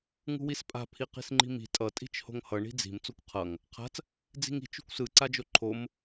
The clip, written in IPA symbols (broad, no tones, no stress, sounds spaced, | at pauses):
ŋ ṳ w i s pʼ a̤ pʰ i q i̤ s ŋ͡ǃ i̤ m i̤ tʼ ʌ tʼ i̤ t͡ʃ h o̤ ŋ h ʌ ɳ i̤ d͡z i̤ m t͡s o kʷ qʰ ʌ ŋ | qʰ a̤ t͡s | d͡z i̤ ŋ i̤ t͡ʃ ṳ kʷ s ɯ ǀ a d͡ʒ o ǃʰ o m